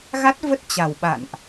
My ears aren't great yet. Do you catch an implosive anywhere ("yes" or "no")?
yes